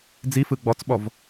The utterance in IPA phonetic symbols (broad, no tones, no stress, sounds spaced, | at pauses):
d͡z i f ɯ ɡ͡b ɔ t͡s ɓ ɔ v